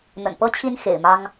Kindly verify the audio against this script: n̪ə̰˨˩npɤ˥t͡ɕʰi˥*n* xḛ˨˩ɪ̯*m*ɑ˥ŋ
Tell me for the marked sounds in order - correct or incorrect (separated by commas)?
correct, correct